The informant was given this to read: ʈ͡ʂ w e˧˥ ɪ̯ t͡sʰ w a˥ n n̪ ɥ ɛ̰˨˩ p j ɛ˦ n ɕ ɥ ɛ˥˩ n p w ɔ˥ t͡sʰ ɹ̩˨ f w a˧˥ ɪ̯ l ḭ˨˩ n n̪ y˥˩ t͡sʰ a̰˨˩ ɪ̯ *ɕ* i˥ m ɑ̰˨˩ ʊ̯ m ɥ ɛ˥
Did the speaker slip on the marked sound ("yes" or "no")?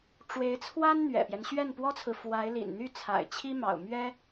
yes